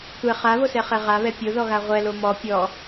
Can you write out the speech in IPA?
tʷɛ χaβosɛχɛ ʁaβɛ pʲoðɔɣa ʁʷɛlo mɔ pʲɔ

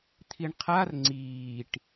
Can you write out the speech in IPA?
t̪ʰiɳqʰar ŋ͡ǀiːʈ

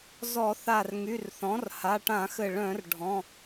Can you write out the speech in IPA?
zɔ˧˩˧ θa˧˩rŋy˩˧˩rθɔ̃˩˥r ha˩˧˩ʈã˧˩˧xɘ˧˩ ɭœ̃˧˩˧r ɖʱɔ̃˩˧˩

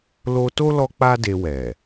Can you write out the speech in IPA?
lo˧to˦ lɔ˦k͡pa˦ de˧wɛ˨

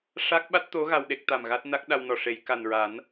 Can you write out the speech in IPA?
ʂa˦˥k̚ɓa˦˥t̚t̪o˧˥ ɣa˧wɗe˦˥k̚t̪a˨˩mɣa˦˥t̚ na˦˥k̚ ɗa˧wnɔ˨˩ ʂe˨˩˨jka˨˩nɹa˨˩˦n

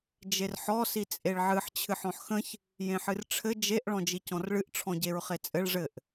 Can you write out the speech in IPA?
d͡ʒerħɔ sit͡sʼeɭʕɨħ t͡ɕʰɨħɔ̃ħxə̃ç | jẽħɨrʈ͡ʂʰɘ d͡ʒeʔ ɭɔ̃d͡ʒicɔ̃rɭɨʔ ʈ͡ʂʰɔ̃ɟeɹχet͡sʼɘɭ ʐɘʔ

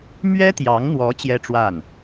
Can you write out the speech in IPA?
mɥɛ˥t̪jɑ˧˥ŋn̪wɔ˧˥ t͡ɕjɛ˥ʈ͡ʂwa˥˩n

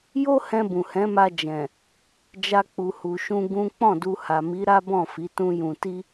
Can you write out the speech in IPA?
jo˦hɛ̃˧ bũ˨hɛ̃˨˦ma˧ d͡ʒɛ̃˨ | d͡ʒa˧k͡pu˨hu˨ʃũ˧ ɡũ˦ k͡pɔ̃˦˨du˧ ha˨mi˨˦ɾa˦bɔ̃˦˨ fi˨˦tũ˦jũ˧ ti˦

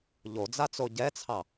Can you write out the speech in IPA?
ʎod͡zat͡so ɟɛt͡sʰɑ

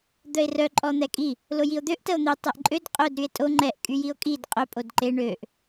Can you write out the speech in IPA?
d̪œe̯rœ ǃʼɔn̪ɛkʼi | lojio̯d̪øʔ təo̯n̪i tˤɛʔǃʼød qʼœd ɾye̯tʼo ŋ͡ǃɛʔ kʼyjio̯kʼid qʼœ pʼodǃe ɳøʔ

